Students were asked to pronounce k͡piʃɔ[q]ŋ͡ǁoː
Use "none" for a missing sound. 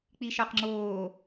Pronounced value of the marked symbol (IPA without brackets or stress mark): q